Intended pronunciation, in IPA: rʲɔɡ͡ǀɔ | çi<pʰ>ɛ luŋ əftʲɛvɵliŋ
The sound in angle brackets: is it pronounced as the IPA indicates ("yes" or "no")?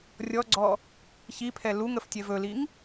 yes